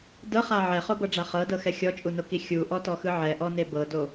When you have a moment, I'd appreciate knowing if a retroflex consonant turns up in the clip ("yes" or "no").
yes